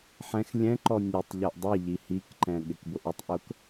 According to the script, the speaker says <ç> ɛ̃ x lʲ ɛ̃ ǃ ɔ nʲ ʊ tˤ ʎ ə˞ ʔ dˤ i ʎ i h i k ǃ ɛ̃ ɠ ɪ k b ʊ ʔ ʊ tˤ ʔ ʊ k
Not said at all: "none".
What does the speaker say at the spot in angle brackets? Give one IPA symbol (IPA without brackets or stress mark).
ħ